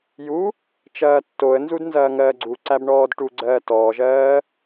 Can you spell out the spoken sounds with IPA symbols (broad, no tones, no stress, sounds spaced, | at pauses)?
j u | t͡ʃ ɐː tː o ə̯ n z u d n z ɐː ŋ ɜː ɡ͡ǀ u ǀ æ b ɳ ɔː d ʈ u ɡ͡ǀ ɜː t ɔː ʒ ɜː